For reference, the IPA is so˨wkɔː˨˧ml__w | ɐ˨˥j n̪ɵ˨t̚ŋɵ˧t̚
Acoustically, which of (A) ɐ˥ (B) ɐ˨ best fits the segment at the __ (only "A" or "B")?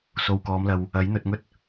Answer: B